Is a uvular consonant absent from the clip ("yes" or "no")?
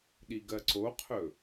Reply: no